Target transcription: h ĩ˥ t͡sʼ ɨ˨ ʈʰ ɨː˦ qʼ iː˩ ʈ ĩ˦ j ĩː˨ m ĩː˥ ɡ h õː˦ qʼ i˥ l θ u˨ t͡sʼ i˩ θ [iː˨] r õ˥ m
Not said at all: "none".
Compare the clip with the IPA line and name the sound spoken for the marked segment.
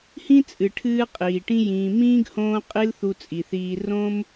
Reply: iː˨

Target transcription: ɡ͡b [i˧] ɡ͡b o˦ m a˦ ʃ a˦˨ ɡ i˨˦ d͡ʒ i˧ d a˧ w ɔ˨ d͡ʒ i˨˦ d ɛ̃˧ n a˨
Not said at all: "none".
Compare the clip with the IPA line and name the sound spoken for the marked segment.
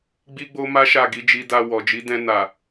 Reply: i˦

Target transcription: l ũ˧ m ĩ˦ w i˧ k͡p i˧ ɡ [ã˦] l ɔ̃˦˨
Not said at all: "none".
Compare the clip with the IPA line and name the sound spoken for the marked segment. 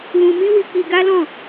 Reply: a˦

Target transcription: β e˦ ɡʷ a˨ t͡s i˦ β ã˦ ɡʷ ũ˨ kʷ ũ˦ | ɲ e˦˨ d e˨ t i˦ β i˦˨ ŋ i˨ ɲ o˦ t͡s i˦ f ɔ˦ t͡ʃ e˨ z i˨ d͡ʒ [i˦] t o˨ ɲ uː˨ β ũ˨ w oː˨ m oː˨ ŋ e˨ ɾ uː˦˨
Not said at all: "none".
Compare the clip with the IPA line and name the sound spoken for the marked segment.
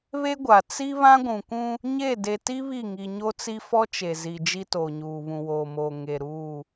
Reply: i˦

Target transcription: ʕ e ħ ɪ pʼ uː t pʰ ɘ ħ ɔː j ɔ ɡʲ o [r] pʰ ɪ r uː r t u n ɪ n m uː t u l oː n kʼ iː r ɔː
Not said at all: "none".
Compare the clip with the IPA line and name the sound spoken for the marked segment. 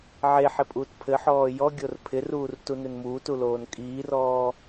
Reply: r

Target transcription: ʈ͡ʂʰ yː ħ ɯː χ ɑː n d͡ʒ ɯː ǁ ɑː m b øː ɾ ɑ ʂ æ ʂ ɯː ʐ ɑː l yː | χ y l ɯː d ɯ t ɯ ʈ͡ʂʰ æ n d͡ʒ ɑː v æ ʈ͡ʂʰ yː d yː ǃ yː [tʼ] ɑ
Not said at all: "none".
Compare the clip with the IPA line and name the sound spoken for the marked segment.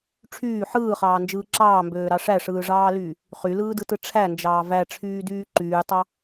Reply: tˤ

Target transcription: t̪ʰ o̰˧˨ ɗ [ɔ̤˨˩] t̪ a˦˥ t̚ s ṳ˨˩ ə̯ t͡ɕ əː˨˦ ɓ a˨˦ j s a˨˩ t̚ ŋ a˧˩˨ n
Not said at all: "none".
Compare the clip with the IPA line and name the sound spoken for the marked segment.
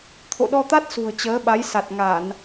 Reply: ɔ˧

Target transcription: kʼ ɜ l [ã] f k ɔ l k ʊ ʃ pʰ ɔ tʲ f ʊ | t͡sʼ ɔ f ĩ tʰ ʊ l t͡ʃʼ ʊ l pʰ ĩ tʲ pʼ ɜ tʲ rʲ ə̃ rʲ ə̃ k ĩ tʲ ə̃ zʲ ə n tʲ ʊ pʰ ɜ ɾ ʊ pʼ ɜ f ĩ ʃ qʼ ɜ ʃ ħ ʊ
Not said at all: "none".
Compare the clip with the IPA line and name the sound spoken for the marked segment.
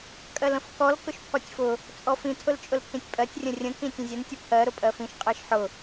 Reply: ə̃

